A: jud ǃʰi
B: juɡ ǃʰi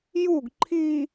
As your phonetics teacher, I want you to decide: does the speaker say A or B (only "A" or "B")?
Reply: B